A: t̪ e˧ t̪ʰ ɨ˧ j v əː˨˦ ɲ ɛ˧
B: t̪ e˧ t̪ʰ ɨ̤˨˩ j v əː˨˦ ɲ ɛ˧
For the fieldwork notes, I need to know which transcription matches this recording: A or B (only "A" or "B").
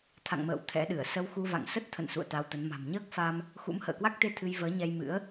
A